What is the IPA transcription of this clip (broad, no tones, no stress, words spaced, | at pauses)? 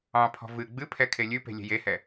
ɑ̃pʰɔ̤ vɨ ɡ͡bɨpʰɛ kʰelʲʉpe̤ lʲe̤jehɛ